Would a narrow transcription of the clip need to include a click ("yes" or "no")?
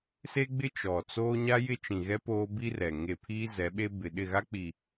no